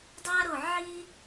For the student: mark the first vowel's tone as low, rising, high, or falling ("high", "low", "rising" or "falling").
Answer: high